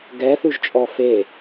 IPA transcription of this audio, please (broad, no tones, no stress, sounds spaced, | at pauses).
ɡ ɛ θ ʉ ʒ t͡ʃʼ ɔ f e